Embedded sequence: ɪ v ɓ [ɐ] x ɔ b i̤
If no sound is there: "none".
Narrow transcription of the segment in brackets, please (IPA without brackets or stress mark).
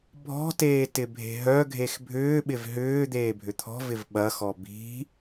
ɐ